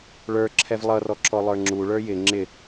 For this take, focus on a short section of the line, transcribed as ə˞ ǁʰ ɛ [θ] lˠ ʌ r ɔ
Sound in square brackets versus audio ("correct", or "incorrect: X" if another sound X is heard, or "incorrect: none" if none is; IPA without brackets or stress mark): incorrect: v